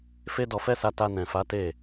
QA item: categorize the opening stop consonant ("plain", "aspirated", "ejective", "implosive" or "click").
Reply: plain